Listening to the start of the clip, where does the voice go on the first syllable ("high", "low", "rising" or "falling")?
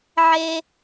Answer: high